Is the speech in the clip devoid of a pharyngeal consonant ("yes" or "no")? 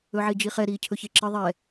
no